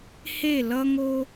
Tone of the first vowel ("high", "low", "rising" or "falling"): falling